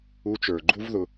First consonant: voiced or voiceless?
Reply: voiceless